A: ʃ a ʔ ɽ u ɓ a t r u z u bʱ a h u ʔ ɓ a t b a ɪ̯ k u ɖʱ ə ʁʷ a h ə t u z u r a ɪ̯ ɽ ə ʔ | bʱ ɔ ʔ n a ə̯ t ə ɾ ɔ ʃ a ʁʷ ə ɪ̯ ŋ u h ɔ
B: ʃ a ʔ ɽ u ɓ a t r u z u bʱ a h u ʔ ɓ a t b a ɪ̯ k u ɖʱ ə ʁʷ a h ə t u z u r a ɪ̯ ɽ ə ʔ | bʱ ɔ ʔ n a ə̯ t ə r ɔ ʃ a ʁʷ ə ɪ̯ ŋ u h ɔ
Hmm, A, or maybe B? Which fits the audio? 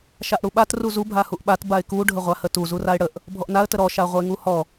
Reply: A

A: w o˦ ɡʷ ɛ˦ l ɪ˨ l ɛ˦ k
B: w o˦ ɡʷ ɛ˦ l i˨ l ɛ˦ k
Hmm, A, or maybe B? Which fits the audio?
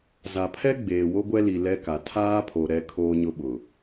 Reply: B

